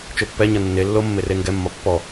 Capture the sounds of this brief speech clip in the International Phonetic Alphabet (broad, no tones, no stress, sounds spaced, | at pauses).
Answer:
t͡ʃ o pː ɛ ɲ ʌ nː e lː o mː e r e ŋ ɡ ɛ mː ɒ pː ɔ